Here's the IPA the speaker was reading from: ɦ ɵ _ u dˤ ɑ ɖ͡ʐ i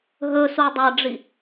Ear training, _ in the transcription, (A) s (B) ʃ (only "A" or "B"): A